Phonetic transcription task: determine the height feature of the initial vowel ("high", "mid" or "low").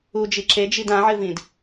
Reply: high